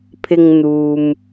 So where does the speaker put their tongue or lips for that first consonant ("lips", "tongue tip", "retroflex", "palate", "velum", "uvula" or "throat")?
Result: lips